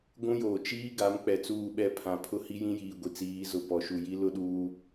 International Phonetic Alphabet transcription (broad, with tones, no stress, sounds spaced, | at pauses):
ɡʷ ũ˦ j oː˨ t͡ʃ iː˦ ɡ a˨˦ m k͡p ɛ˨ t͡s uː˦˨ ɓ ɛ˦˨ pʰ ã˨ pʰ ʊ˦ h i˦ j ĩ˦ j iː˨ ɡʷ i˨ t͡s iː˨˦ z ʊ˨ p ɔ˨ ʃ u˨ j i˦ l ʊ˦ ɗ uː˦